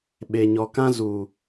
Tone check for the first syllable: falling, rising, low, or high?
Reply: low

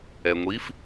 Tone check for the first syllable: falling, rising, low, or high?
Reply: low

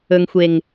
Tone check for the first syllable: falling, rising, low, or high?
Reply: low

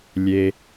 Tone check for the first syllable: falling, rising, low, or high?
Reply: low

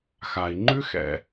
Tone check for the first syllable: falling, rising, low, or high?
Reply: low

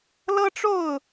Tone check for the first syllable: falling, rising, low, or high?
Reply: high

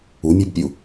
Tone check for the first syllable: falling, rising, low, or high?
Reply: rising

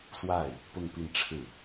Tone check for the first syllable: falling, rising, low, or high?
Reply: falling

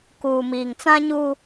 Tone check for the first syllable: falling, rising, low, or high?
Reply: low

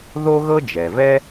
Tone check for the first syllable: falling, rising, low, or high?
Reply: high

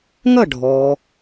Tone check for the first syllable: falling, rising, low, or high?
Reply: falling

